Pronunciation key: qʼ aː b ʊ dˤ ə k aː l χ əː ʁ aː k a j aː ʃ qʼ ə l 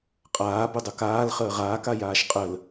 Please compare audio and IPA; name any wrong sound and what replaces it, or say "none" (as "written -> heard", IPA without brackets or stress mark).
none